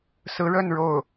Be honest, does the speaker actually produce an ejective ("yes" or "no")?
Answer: no